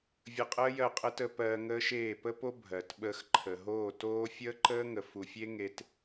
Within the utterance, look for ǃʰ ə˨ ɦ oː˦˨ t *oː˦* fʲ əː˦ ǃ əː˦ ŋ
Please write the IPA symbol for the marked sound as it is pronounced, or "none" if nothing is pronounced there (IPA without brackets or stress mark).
oː˦